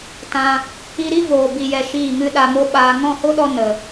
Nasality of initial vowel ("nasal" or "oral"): nasal